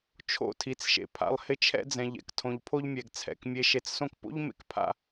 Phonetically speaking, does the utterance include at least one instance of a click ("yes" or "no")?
no